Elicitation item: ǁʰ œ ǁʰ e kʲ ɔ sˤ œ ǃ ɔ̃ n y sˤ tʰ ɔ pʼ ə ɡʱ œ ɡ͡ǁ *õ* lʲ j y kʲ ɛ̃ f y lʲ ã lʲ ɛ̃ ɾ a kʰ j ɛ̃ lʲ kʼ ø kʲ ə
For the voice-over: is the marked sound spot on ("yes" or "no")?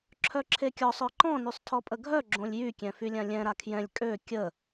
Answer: yes